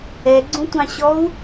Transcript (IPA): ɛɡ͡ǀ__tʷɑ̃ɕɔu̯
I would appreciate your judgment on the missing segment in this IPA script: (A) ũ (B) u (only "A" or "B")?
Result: A